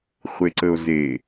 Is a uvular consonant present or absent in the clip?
present